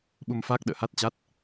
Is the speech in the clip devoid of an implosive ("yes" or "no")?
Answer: no